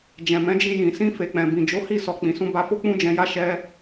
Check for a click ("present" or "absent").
absent